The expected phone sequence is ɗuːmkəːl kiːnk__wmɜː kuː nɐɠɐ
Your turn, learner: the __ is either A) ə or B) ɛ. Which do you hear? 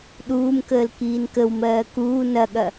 A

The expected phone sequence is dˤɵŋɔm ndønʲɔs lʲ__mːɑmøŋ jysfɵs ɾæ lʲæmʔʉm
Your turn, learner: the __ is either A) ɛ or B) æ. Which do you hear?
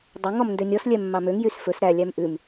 A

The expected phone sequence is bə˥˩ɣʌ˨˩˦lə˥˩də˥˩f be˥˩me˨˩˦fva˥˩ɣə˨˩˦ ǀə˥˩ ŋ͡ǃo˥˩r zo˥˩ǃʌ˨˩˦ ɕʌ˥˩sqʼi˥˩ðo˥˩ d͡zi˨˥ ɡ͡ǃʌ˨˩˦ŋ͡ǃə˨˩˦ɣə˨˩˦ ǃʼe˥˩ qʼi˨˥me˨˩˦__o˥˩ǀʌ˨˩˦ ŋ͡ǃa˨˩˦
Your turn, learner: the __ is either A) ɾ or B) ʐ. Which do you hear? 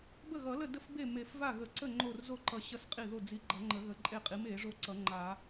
B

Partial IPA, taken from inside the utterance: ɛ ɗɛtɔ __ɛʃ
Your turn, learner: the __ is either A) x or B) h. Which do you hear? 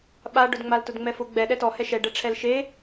B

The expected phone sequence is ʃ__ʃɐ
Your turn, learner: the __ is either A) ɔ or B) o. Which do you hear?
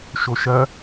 B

